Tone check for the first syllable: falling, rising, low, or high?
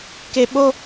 high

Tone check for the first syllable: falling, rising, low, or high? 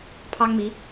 high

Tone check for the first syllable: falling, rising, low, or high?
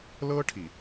high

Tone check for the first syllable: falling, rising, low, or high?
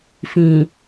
low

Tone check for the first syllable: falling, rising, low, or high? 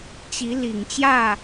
rising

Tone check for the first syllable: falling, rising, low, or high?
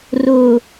low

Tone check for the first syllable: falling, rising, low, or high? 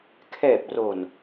low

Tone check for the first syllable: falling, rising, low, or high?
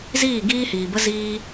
falling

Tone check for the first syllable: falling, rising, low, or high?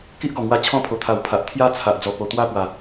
high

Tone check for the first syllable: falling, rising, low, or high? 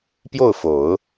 falling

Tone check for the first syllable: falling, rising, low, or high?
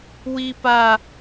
high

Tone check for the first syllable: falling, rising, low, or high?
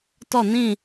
falling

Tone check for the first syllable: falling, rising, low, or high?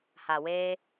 low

